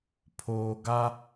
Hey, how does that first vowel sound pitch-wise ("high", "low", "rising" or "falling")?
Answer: low